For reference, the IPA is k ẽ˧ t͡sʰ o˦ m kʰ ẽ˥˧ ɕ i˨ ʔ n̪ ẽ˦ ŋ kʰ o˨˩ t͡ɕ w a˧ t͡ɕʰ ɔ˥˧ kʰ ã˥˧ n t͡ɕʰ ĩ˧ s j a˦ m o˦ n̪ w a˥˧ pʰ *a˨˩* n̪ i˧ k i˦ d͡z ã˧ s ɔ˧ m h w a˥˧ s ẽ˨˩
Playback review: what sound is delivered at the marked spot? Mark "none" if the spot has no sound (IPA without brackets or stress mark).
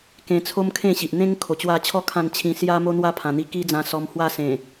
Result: ã˨˩